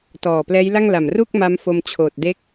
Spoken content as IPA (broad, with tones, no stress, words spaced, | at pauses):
tɔː˨˩plɛː˦˥jla˥˩ŋla˨˩m ru˥˩k̚ ma˦˥mfo˧mt͡ɕʰoː˨˩t̚ de˥˩k̚